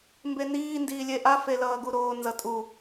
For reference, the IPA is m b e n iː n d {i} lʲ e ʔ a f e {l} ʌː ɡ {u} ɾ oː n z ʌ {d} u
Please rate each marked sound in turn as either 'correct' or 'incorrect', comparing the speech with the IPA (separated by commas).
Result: incorrect, correct, correct, incorrect